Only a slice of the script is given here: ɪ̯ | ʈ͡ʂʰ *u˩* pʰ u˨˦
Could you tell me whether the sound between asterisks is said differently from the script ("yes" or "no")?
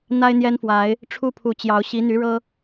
yes